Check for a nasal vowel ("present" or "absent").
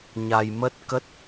absent